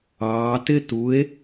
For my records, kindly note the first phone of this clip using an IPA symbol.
ɑː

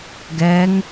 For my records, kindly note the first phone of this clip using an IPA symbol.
ɡ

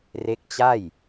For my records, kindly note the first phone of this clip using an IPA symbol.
r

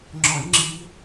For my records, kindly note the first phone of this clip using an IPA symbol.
ŋ͡ǁ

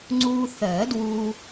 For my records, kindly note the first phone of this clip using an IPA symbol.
ŋ͡ǀ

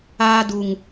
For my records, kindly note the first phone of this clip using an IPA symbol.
aː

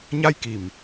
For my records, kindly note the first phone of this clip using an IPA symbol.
ɲ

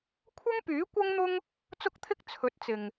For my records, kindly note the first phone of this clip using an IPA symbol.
kʷʰ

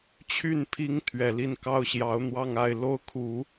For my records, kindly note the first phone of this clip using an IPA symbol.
t͡ɕʰ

